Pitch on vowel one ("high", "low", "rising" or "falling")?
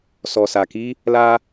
low